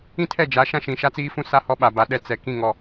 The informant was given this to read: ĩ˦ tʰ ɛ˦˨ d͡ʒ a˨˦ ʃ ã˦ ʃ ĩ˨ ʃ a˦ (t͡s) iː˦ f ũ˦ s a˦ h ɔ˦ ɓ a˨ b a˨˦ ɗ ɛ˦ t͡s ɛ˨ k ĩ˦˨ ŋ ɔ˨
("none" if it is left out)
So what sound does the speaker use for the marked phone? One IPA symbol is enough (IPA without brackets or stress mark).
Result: t͡s